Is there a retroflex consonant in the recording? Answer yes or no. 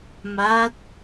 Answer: no